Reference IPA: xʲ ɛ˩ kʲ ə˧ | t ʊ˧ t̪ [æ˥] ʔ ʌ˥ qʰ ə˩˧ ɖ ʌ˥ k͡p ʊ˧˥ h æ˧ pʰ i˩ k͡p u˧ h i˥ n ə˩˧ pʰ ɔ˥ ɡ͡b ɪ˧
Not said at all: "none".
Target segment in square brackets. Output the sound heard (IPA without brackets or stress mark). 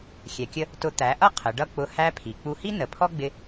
æ˩˧